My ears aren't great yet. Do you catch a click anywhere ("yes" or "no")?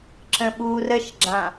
yes